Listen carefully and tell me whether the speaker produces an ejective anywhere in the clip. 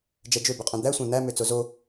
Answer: yes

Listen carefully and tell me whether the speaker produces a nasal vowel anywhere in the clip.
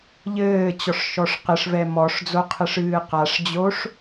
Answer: no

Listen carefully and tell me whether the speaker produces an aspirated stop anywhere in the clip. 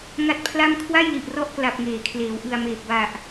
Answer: yes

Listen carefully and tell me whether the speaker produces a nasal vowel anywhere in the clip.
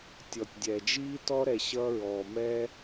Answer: no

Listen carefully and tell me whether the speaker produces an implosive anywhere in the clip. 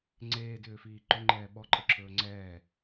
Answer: yes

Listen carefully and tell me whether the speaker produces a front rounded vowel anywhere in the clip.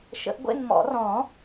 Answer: no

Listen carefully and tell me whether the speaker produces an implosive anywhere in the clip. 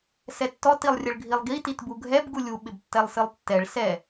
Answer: yes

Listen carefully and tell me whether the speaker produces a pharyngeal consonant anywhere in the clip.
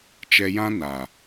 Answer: no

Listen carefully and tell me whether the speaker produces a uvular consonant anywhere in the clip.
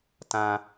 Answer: no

